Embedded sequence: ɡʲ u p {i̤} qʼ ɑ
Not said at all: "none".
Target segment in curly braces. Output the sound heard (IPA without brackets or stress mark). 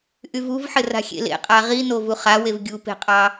e̤